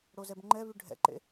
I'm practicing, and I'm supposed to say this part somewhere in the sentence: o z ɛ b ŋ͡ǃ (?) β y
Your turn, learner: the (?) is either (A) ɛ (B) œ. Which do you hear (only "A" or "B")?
A